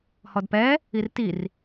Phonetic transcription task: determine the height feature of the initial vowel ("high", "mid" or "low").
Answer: mid